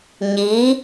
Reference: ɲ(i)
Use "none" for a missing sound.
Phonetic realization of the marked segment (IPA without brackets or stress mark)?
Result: i